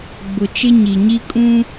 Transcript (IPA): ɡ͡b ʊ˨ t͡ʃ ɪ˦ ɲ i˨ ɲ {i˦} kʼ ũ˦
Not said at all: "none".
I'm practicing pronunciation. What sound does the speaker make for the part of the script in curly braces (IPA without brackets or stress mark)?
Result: i˦